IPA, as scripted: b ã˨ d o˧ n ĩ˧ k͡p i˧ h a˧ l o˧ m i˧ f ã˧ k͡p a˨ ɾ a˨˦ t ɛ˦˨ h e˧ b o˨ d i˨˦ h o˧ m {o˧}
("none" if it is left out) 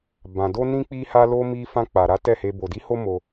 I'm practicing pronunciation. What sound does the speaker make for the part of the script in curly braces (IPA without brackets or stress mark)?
o˧